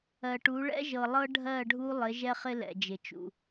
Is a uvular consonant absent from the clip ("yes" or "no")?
no